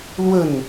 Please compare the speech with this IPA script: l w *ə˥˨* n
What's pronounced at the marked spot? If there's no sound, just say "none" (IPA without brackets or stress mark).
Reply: ə˥˨